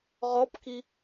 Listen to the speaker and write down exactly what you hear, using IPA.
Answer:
ʁ ɔ p k i

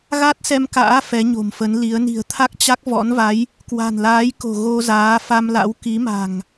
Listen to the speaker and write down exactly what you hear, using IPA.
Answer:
ɣ a˦˥ t̚ s ɛ˧ m k a̰ː˧˥ f ɛ˨˦ ɲ o̤˨˩ m f ə˨˦ n l i˨˦ ə̯ n i̤˨˩ ə̯ t̪ʰ a˦˥ k̚ t͡ɕ a˦˥ k̚ v ɔ̰˧˥ n v a˨˦ j | k w a̤˨˩ n l aː˨˦ j k o̤˨˩ ɣ o˧ z aː˨˦ f a˧ m l a̰˧˥ w k i˨˦ m a̤˨˩ ŋ

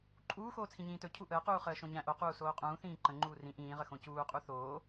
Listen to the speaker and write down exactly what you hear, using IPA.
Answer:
ǃʼ uː x oː t͡sʰ ĩ ɲ ĩː t ɵ cʰ u ʔ əː q uː χ əː ʃ õ ɲ æ̃ ʔ o q uː s oː qʼ ũː θ ĩː ǃ ə̃ ŋ͡ǃ uː r ĩ ʔ ĩː ʁ ə x õ c uː qʼ u θ oː

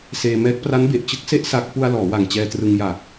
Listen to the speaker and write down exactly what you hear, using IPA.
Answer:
s eː˧ m ɛː˦˥ k̚ p r a˦˥ n b e˨˩ ʔ t͡ɕ ɯ˦˥ k̚ s e˦˥ ʔ s a˦˥ k̚ p u˧ a̯ l ɔː˩˦ w a˨˩ ŋ t͡ɕ ɛː˧ t r ɯ˧ ŋ j a˨˩ k̚

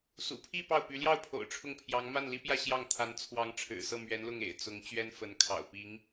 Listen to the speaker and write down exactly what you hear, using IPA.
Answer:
s ṵ˨˩ pʰ i˥˧ p ɑ˥˩ ʊ̯ p y˧˥ l j ɑ˥˩ ʊ̯ pʰ o̰˨˩ ʊ̯ ʈ͡ʂʰ ʊ˥˩ ŋ pʰ j ɑ˧˥ ŋ m a˥˩ n l i˥ p j ä˥˧ ɕ j ɑ˥˩ ŋ t̪ʰ a˧˥ n t͡sʰ w ɑ˧˥ ŋ ʈ͡ʂʰ ɻ̩˨˩ s ɤ˥˩ m ɥ ɛ˧˥ n l ʊ˥˩ ŋ ḛ˨˩ ɪ̯ t͡s ʊ˧˥ ŋ t͡ɕ ɥ ɛ˥ n f ə˧˥ n kʰ ɑ̰˨˩ ʊ̯ p i˧˥ ŋ

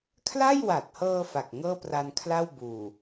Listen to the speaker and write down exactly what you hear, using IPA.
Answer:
kʰ l a˥˩ j w a˨˩ t̚ h ɤː˧ f a˨˩ k̚ ŋ ɤː˥˩ p r a˧ n kʰ l a˥˩ w b uː˨˩

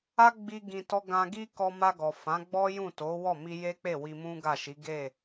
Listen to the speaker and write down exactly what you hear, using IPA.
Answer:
a˦ ɡ͡b i˧ ɡ ĩ˧ t ɔ˦ ɡ ã˧ ɡ i˦ k ɔ˧ m a˧ ɡ ɔ˨ f ã˨˦ ɡ͡b ɔ˦ j ũ˦˨ t o˨˦ w ɔ˦˨ m i˧ j e˦ k͡p e˦˨ w i˧ m ũ˦ ɡ a˦˨ ʃ i˨˦ ɡ e˦˨

